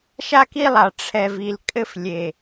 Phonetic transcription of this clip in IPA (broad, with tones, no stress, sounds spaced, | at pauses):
ʃ a˦ k i˦ lˠ a˨ ʈ͡ʂʰ ɛ˨ v i˨ l kʼ ɘ˦ f lʲ e˨